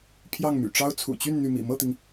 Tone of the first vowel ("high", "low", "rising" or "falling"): falling